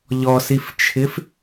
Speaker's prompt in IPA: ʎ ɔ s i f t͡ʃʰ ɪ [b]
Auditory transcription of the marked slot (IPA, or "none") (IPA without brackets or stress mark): f